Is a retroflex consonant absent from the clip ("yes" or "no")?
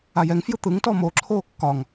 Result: yes